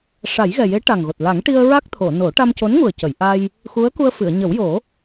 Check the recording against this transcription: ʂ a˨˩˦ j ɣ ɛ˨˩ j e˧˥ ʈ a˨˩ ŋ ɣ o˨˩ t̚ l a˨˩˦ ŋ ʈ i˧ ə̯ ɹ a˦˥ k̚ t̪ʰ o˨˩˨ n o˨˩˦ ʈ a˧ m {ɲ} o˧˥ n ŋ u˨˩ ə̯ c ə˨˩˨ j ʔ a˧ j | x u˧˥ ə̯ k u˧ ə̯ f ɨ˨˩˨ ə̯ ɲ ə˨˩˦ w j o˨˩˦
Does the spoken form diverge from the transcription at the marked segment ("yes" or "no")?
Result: yes